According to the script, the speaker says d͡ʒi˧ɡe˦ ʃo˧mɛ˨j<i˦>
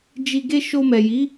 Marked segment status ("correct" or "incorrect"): incorrect